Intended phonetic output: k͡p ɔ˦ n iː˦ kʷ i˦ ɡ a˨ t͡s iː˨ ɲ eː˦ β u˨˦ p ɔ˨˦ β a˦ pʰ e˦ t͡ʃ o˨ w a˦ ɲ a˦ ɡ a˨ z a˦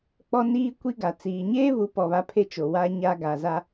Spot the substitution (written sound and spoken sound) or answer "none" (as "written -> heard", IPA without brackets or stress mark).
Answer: none